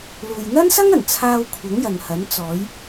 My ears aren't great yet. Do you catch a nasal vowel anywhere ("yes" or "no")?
no